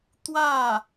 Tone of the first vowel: falling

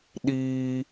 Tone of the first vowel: high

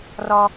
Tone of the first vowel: high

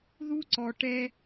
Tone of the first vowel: high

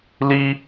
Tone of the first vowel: high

